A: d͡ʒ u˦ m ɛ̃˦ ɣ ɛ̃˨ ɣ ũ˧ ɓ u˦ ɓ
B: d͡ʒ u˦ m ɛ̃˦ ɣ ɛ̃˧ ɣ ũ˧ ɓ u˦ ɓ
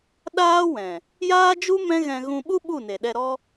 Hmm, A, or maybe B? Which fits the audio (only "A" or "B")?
B